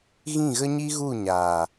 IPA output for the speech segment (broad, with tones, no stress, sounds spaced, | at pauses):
ɣ ĩ˦˨ ɣ ə˦ ɲ i˦ ɣ u˦˨ ɲ aː˨